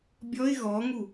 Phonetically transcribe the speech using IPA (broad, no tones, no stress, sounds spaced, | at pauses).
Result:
bʲ ɔ ɪ̯ ɣ ɔ ŋ u